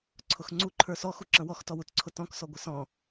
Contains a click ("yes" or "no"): yes